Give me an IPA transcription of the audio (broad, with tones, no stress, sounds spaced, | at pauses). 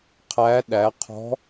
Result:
qʰ æ˧˥ ɗ æ˩˧ qʰ ɔ̤˧˥